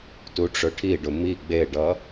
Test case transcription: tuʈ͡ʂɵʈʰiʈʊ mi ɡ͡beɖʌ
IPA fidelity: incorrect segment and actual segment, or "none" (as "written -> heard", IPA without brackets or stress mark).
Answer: ʈ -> ɖ